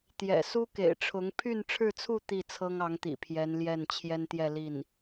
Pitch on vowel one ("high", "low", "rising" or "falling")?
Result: low